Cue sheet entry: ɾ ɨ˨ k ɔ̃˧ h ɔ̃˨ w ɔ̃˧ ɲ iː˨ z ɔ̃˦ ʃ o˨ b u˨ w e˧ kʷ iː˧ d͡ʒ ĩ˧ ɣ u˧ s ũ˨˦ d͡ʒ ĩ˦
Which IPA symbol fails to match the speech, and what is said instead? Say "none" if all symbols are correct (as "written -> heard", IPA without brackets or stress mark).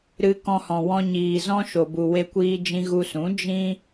ɨ˨ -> ɨ˧